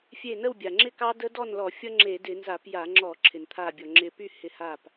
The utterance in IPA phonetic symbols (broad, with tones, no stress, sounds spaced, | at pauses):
fʲ e˧˩ n ə˥˨ w bʲ a˩ ŋ͡ǁ ɪ˥˨ k ɑ˦˥ d ə˦˥ d ɔ˥˨ n l ɔ˧˩˧ fʲ ʌ˦˥ ŋ͡ǁ e˧˩˧ d ɪ˧˩˧ n z a˧˩˧ p j a˧˩˧ ŋ͡ǁ ɔ˧˩˧ ǁʰ ɪ˩ n t̪ʰ a˧˩ bʲ ɔ˩ ŋ͡ǁ ɪ˧˩ p y˥˨ h ɪ˧˩ h a˧˩ p